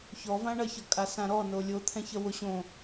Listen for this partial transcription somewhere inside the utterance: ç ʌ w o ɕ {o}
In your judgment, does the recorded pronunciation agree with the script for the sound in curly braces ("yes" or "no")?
no